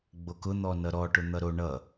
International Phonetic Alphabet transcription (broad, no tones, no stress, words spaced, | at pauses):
ɡ͡bokʊ n̪ɔnʌɾɔʈʊ n̪ʌɾo ɳʌ